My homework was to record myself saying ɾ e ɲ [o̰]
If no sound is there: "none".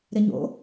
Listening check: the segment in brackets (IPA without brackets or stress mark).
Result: o̰